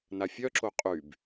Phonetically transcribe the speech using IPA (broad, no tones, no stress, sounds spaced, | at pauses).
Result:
n a fʲ œ ǁ o qʼ y b